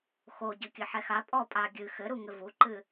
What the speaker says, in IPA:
x o ɟ ɘ kʲ ɘ ħ ɛ x a pʼ ɔ pʼ a ɡʲ ɨ x ɘ ɾ u ŋ ɘ v u ǃ ɨ

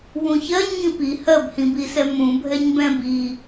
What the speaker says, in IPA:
w ũ ç ɜ ɲ ŋ ĩ p i h ɜ b h ĩ b i s ɛ m ũ bʱ ɛ ɲ b ɛ̃ b i

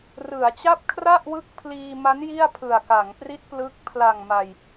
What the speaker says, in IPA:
r ɯ˩˦ a̯ t͡ɕ a˥˩ p̚ kʰ r a˥˩ ʔ w ɯ˦˥ k̚ pʰ l iː˧ m a˦˥ n j i˥˩ a̯ pʰ ɯ˨˩ a̯ k a˩˦ ŋ p r i˦˥ t̚ p l ɯ˦˥ k̚ pʰ l a˨˩ ŋ m a˨˩ j

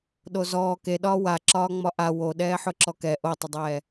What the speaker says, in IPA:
ɗ o z ɔː k e ɗ ɒː w a ǁ ɒː ŋ͡m ɒ ʔ a w o ɗ ɛː ħ ʊ ǁ ɔ k ɛ ʔ o tˤ ə dˤ ɛː

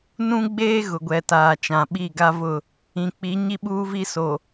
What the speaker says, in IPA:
n ũ˦ ɡ͡b eː˦ ɣ ʊ˨ ɡʷ ɛ˨ t aː˨ t͡ʃ ã˨ ɓ i˦˨ ɡ a˦ v ʊ˦˨ | ĩ˨ k͡p i˨˦ ɲ i˦ ɓ uː˦ v i˦ s o˨

